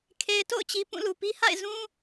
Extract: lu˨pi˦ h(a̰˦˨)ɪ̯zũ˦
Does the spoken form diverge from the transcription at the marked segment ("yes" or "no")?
no